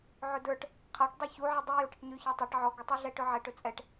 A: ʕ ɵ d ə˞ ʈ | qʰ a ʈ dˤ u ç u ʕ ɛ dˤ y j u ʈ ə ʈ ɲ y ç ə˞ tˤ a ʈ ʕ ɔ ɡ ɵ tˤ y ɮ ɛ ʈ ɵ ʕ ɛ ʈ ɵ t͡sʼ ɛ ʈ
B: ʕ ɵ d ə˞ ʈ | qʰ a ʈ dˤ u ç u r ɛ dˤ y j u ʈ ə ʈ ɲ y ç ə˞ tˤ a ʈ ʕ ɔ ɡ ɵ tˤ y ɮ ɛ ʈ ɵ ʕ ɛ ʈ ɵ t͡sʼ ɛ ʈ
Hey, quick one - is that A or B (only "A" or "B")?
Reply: A